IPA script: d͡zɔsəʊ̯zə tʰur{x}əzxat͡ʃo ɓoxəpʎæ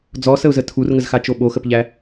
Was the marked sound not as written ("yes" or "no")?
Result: yes